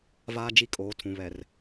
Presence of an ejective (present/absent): present